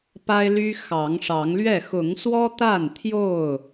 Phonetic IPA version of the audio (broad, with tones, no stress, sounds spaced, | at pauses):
p a˦ ɪ̯ l y˦ x ɑ˨˦ ŋ ʂ ɑ˨˦ ŋ l ɥ ɛ˥˨ x ʊ˨˦ ŋ s w ɔ˦ t̪ a˥˨ n t̪ʰ j o˥˨ ʊ̯